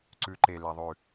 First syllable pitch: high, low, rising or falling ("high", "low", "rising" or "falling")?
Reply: rising